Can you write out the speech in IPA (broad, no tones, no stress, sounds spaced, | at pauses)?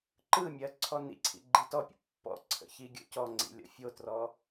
ǃ ɯ mʲ ɜ ǀʰ ɔ n ḭ ǀʰ ḭ ɡ͡ǃ i t ɔ pʲ ə̰ pː ɔ̰ ǀʰ ə̰ ç i ɡʲ o̰ c ɔ ŋ͡ǀ ḭ lʲ ɔ̰ fʲ o t r ɔ